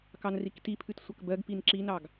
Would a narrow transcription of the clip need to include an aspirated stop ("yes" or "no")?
yes